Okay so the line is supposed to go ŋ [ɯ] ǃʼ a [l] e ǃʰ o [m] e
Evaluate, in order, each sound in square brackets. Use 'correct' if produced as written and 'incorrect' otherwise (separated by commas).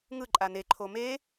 correct, incorrect, correct